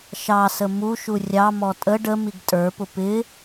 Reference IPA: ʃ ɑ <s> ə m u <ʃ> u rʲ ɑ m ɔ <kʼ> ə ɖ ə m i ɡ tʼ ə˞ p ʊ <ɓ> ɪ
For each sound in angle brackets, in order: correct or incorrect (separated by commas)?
correct, correct, incorrect, incorrect